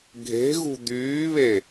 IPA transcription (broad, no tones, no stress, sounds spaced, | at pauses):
ɡʱ e̤ ɣ ṳ d̪ yː β e